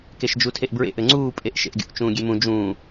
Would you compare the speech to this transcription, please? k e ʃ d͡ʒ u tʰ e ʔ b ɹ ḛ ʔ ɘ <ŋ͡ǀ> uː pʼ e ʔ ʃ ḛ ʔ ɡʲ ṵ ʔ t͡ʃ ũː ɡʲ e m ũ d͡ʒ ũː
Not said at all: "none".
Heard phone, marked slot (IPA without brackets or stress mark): ŋ͡ǀ